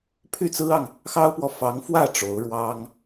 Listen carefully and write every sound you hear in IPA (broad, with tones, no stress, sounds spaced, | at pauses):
pʰ y˥˩ t͡s ɹ̩˥ ɑ˨ ŋ | x ɑ˥ ʊ̯ p w ɔ˨ f ɑ˧˥ ŋ f w ä˥˩ ʈ͡ʂ o˧˥ ʊ̯ ɻ w ɑ˥ ŋ